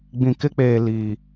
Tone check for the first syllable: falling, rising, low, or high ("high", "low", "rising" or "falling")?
low